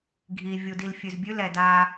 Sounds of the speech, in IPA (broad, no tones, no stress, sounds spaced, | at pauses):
ɡʱ i vʲ u d i l fʲ ʉ z bʲ ʉ l ɛ d a